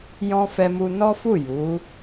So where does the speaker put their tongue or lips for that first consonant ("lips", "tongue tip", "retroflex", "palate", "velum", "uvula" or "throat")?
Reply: palate